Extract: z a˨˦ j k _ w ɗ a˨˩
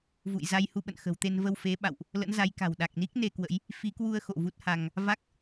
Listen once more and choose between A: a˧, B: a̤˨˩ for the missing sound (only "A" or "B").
B